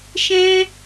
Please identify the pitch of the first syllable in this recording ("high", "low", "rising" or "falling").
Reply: high